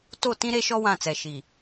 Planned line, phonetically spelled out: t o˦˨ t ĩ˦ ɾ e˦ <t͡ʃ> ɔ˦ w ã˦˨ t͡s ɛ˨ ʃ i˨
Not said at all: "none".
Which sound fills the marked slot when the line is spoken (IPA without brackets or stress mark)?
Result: ʃ